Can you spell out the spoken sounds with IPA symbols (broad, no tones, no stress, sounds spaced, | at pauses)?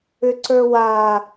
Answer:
ʏ ǀ ə˞ w a